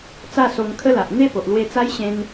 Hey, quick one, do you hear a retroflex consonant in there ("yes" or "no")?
no